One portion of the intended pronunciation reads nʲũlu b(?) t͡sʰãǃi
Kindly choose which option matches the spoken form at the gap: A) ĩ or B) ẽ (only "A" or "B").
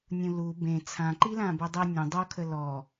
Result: B